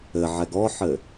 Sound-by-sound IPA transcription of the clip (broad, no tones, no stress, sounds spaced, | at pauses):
ɘ ʕ ɛ ɡ ɔ ħ ɘ